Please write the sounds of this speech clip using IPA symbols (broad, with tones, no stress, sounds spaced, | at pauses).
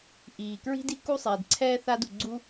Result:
ʔ iː˩ k ɹ i̤˥ d i˥ k u˥ sˤ eː˩ d ǀʰ ɛː˥ θ a˥ d u˩ ɡ͡ǀ u˥